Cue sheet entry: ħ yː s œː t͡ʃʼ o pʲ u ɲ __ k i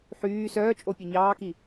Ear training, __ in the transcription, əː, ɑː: ɑː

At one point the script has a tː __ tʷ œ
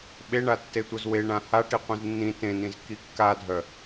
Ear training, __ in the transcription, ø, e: e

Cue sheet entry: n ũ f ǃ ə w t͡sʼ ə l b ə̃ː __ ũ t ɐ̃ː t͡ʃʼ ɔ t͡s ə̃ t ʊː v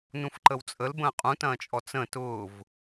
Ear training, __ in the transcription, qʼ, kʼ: qʼ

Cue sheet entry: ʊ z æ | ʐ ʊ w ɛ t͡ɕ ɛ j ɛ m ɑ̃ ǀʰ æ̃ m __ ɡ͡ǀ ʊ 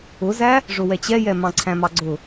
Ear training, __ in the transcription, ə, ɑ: ɑ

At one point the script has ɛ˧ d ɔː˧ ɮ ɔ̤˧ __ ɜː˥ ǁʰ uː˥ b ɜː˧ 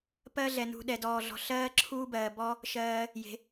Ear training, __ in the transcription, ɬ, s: ɬ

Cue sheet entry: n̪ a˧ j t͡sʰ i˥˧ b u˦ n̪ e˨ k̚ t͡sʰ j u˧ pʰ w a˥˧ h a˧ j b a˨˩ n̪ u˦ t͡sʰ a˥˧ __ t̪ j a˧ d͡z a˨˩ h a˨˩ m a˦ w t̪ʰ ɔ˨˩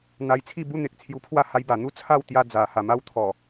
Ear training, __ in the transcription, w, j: w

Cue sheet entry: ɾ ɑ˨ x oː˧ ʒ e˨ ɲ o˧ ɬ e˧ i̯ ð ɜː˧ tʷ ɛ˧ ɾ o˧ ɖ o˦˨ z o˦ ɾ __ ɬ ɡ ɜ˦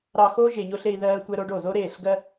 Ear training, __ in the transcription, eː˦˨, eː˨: eː˦˨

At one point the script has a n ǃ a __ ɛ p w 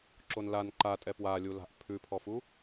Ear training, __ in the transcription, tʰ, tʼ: tʼ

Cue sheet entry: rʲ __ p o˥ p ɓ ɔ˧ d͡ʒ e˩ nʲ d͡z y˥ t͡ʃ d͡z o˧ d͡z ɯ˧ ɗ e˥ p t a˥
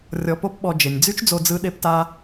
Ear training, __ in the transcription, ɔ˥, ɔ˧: ɔ˧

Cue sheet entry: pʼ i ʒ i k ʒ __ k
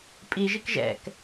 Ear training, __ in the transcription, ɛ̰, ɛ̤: ɛ̰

